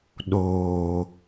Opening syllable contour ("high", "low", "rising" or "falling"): low